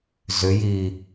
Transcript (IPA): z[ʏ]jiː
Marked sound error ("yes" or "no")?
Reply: no